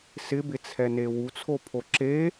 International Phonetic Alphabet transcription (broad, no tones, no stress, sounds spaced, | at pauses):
s ɪ b ɪ t͡sʰ ɛ n e w u t͡sʰ o pʰ o ǁ e